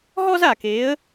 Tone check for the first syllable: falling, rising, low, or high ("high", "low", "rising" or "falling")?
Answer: high